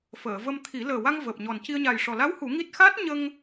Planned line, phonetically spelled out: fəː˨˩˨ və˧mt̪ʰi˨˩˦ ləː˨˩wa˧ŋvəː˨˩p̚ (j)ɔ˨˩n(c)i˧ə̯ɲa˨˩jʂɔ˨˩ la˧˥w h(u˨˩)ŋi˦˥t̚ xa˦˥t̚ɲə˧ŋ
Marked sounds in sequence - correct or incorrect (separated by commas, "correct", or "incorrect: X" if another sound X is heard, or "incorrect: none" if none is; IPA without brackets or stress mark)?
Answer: incorrect: ɲ, correct, incorrect: u˨˩˦